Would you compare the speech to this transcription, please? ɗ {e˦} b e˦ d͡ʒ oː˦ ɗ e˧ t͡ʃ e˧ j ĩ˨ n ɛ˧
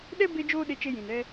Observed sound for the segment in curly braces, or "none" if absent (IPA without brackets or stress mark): ɛ˦